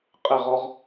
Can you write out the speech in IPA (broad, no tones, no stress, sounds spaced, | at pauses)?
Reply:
qʼ e ʁ ɔ ʁ